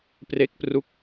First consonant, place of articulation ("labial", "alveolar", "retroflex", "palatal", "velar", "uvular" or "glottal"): labial